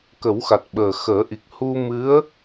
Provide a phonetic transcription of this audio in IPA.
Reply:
k ə˨˩˦ w x a˨˩ t̚ ɓ əː˨˩ x əː˨˩˦ ʔ i˨˩ k̚ h u˧ m ɨ˧˥ ə̯

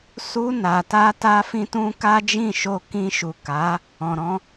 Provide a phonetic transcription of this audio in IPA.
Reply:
s u˧ n a˨ t a˧ t a˦ f ĩ˦ t ũ˦ k a˦ d͡ʒ ĩ˦˨ ʃ o˧ k ĩ˧ ʃ u˨ k a˨˦ | ɔ̃˨ ɾ ɔ̃˧

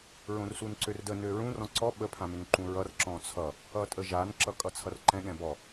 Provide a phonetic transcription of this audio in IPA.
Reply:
ɹ õ r s u n ǀ ø r d ə n ø ɹ ũ r ɔ̃ ǀ ɔ ɓ ə pʰ ã m ʏ n ǃ ũ ɹ ʌ r ǁ ɔ̃ t͡sʰ ʌ | ʌ tʼ ə ʒ a n ǁ ʌ kʼ ʌ t͡sʰ ʌ r ǃ ɛ̃ ɠ ɛ̃ b ɔ

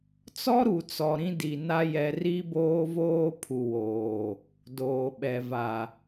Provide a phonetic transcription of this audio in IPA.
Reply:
t͡s ɔ˦ ɾ u˨ t͡s ɔ˨ ɾ ĩ˦ d i˨ n a˦ j ɛ˦ r i˦ b oː˦ v oː˦ pʰ u˨ w oː˨ | d oː˨ ɓ ɛ˨ v a˨

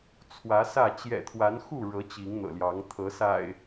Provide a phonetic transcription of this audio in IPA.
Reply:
t͡sʰ w ä˨˦ s ä˥˨ t͡ɕ j ɛ̰˨˩ t̪ʰ w a˨˦ n x u˥˨ ɻ ɤ˨˦ t͡ɕ i˨˦ ŋ n̪ ɤ̰˨˩ l j ɑ˨˦ ŋ t̪ʰ ɤ˨˦ s a̰˨˩ ɪ̯

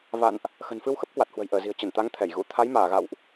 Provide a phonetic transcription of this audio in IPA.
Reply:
v a̰˧˨ n ʔ | x ə̤˨˩ n f ɨ˧ w x ə˦˥ p̚ k w a˨˩ t̚ h w ə̤˨˩ j ʔ əː˧˩ z i̤˨˩ ə̯ t͡ɕ ə˧˩ n t̪ a˨˦ ŋ t̪ʰ ɛ˧˩ j ɣ ṵ˧˥ t̪ʰ a˨˦ j m aː˧˩ ɣ a̰˧˨ w ʔ

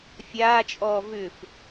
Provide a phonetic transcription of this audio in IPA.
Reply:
fʲ aː t͡ʃʼ ɔː v ʏ f

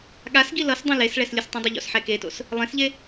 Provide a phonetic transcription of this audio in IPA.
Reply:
ɠ a s ɡ i l ʌ s dˤ ẽ l e s ɭ ɛ s lʲ ɯ s tˤ ũ dˤ ʌ ʎ o̰ s ħ ɛ k e t o̰ s | lˠ ẽ s ʎ e

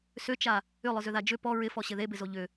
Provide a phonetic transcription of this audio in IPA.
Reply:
s ʏ t͡ʃ a | ʏ lˠ ʊ z ʏ ð a d͡ʒ ʏ p ɔ ɹ ɪ f ɔ ɕ ɪ ð e b ɪ z o ʎ ʏ

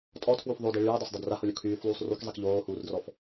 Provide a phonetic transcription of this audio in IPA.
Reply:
tʼ ɔ tʰ w u f ðˤ o d i ɭ yː dˤ o s dˤ a d r a h o lʲ o kʰ yː f lˠ uː sˤ r y k zˤ i k ʎ oː h uː r d r ɔ f

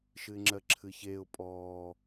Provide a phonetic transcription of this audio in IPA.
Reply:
ʃ ɨ ɪ̯ ŋ͡ǁ ɜ ǁʰ ɨ ç eː ʊ̯ pʼ ɔː

